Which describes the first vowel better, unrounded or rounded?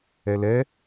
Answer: unrounded